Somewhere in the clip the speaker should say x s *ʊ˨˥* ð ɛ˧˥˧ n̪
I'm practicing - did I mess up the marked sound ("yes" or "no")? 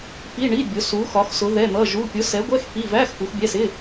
no